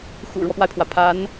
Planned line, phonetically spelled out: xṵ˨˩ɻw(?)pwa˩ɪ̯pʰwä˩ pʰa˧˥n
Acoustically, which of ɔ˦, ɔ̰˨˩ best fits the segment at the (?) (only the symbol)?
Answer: ɔ˦